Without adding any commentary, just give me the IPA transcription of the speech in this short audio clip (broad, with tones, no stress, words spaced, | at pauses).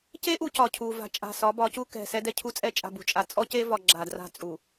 ce˦ʔu˨ cɒ˨cʰu˨ va̤˨ t͡ʃʼa̤˨sɒ˨˦bɒ˨˦cu˦ kɛ̤˨ sɛ˦dɛ˦cʰu˦t͡sʼɛ˦ t͡ʃʼa̤˨bṳ˨t͡ʃʼa˨ t͡sʼɔ˦ce˦vɒ˨ ɡ͡ǁa˨dra̤˦t͡sʼu˨